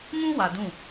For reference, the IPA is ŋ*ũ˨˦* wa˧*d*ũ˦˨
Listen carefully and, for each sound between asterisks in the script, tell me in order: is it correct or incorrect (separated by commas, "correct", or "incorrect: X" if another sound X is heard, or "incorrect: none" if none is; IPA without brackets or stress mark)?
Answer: incorrect: ũ˦, correct